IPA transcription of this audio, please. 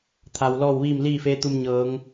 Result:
t̪ʰ a˩ w l ɔː˥˨ w ʋ iː˥˨ m l iː˥˨ f eː˧˥ t̪ u˧ m ɲ ɤː˩˧ ŋ

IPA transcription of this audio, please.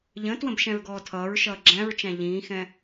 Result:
ʎ ə̃ː t w ə̃ b ʃ ɛ̃ ɹ ɡ ɔː tʰ ʌː ɹ ʃ ʌː ɡ͡ǁ æ̃ ɹ t͡ʃ æ̃ ʎ ĩː x ɛ̃

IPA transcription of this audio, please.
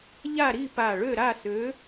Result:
ʎ a˥˨ ɾ i˥˨ p a˧˩ ɭ ø˥˨ ɾ a˥˨ s ø˨˥

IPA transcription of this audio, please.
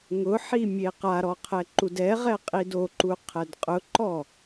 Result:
ŋ ʊ ħ i mʲ e q a ɾ ɔ qʰ ɛ ǃ u d ɛ ʁ ɛ qʼ i d o ǃ u qʰ ɛ d qʼ ʊ ǃ ɔ

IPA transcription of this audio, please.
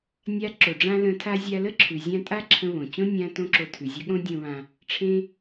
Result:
nʲ a˧ ǁ o˩ ɖ͡ʐ ã˥ l ə̃˧ tʰ a˥ zʲ a˧ l ə˥ ǁʰ ʉ˩ zʲ ã˥ tʼ a˥ ǁʰ ə̃˧ β õ˩ t͡ɕ õ˥ nʲ ã˧ t õ˥ ǁ o˧ tʰ ʉ˩ zʲ ə˥ ɠ õ˥ dʲ õ˧ β ã˧ | ʈ͡ʂʰ ẽ˥

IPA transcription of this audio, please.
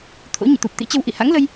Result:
t̪ʰ o̰˧˥ ɲ ḭ˧˨ t̪ u˨˩ p̚ t̪ ḭ˧˥ t͡ɕ ə˧ w ʔ ḭ˧˨ h a̰˧˥ ŋ l ə˧ j

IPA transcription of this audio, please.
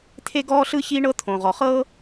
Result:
t̪ʰ e˥ ɡ ɔː˥ ɬ ɯ˥ ç iː˥ ɳ ɤ˥ t̪ʰ õ˩ ʁ ɔ˩ χ ɤː˥

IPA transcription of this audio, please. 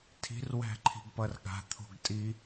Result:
tʰ i̤ r w æ̤ ǃʰ i̤ ɡ p ʌ r ɠ a̤ t̪ʰ o̤ ɡ tʼ i

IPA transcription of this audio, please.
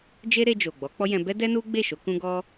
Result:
d͡ʒ e˦ ɾ e˧ d͡ʒ o˨ ɡ͡b ɔ˨˦ k͡p ɔ˦ j ɛ̃˧ b ɛ˦ d ɛ˦ n u˦ ɡ͡b e˦˨ ʃ o˨˦ k ũ˦ ɡ ɔ˦

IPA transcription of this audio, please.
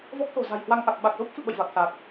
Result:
v ɔ˦˥ k̚ s o̤˨˩ z a̤˨˩ j h w a˧ ŋ ʔ a˨˩ k̚ ɓ a˨˩ k̚ z o˦˥ p̚ f ɨ̰˧˨ ɓ ə̰˧˨ j v a˨˩ k̚ s a˨˩ k̚

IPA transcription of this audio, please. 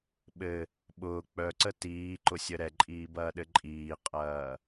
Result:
ɓ ɘ | ɓ ʊː k͡p œ ǀ ə t iː ǃ ʊ sʲ ə ɾ ɛ ǃʼ iː b ɐː ɗ ɘ ǃʼ iː qʼ ɐː

